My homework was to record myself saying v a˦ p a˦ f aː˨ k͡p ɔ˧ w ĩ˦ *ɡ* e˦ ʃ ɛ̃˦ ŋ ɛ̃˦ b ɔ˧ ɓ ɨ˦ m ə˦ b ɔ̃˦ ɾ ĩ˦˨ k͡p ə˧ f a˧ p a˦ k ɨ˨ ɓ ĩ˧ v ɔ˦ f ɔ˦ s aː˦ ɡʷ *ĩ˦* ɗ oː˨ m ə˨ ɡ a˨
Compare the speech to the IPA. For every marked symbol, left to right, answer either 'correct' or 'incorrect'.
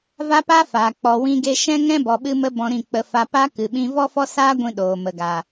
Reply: correct, correct

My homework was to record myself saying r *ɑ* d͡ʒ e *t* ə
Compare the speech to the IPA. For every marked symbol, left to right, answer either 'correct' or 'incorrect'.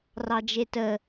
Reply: correct, correct

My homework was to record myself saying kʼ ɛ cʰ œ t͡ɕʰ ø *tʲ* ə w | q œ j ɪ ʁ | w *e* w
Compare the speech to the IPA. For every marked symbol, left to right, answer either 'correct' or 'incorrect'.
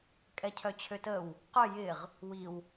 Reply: incorrect: t, incorrect: i

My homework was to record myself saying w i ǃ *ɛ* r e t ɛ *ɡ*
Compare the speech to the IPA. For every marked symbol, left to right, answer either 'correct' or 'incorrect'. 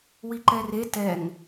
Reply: correct, incorrect: ŋ

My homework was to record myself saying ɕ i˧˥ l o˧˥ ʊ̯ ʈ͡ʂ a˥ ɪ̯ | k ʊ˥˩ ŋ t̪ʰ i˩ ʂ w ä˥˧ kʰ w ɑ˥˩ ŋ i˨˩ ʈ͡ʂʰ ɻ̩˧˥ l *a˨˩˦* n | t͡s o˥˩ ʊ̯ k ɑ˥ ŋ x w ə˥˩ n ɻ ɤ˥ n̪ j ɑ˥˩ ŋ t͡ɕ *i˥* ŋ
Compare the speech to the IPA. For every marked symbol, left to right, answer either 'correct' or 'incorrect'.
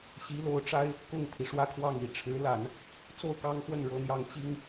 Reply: correct, correct

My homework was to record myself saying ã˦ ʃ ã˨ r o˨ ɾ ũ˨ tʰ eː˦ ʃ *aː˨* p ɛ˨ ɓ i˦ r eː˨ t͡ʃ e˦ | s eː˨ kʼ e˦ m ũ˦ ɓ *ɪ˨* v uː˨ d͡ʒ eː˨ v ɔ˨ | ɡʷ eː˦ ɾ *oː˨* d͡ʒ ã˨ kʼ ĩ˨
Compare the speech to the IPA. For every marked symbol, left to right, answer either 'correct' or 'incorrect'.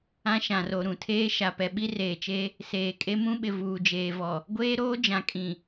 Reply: incorrect: a˨, correct, incorrect: oː˦

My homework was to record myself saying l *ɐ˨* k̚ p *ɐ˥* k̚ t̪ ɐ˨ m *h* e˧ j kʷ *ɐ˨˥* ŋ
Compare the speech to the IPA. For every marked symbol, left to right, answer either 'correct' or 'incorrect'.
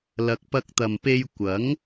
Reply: correct, incorrect: ɐ˧, incorrect: p, correct

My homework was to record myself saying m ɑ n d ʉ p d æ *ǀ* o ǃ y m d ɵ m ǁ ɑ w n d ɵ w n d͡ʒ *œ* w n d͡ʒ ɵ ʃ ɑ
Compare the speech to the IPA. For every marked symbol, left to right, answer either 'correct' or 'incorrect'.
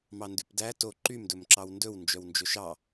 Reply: incorrect: t, correct

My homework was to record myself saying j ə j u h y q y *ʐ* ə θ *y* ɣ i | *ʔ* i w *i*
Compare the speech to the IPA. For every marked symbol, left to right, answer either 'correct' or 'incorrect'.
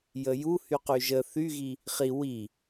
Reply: incorrect: ʒ, correct, incorrect: χ, correct

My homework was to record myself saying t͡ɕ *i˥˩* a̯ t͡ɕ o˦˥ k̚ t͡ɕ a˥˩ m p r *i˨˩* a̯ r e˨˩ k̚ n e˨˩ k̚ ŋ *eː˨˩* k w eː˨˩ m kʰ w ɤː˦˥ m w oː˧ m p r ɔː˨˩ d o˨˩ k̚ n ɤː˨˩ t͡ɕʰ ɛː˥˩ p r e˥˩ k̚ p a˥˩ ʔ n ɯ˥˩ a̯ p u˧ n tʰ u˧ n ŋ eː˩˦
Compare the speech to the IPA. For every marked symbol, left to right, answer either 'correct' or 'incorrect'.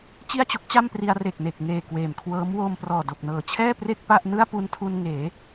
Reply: correct, incorrect: i˧, correct

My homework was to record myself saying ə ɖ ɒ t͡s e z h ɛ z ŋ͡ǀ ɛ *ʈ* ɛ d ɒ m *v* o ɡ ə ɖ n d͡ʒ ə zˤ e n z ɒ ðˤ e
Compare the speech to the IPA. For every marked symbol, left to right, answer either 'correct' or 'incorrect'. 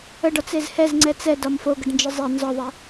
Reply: incorrect: t͡s, incorrect: f

